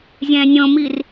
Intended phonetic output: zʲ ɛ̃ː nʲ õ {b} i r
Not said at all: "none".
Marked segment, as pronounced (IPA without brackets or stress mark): m